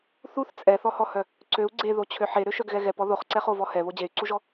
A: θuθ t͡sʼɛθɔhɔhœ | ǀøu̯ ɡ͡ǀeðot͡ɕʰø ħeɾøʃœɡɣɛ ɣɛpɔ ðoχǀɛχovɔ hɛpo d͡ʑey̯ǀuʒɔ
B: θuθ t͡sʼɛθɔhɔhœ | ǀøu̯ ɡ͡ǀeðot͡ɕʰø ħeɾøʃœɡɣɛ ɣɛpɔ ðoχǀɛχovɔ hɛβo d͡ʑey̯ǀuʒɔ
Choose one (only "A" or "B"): B